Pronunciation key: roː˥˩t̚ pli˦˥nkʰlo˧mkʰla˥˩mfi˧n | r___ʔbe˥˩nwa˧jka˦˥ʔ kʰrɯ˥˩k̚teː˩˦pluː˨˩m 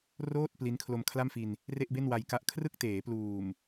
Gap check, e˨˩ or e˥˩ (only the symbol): e˥˩